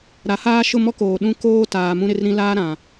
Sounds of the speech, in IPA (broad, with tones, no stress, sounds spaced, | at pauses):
ɾ a˨˦ h aː˦ ʃ ʊ˦˨ m ɔ˦ k oː˨ ɗ ũ˦ k oː˦ t aː˨ m ũ˦ ɾ ɪ˦ r ɾ ĩ˦ l aː˦ ɾ ã˨